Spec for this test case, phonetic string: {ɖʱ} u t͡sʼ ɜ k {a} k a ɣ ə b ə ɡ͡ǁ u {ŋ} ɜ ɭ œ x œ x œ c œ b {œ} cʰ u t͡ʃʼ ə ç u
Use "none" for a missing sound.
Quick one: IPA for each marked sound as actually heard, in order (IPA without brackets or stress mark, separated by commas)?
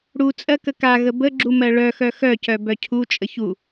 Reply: ɽ, ə, m, œ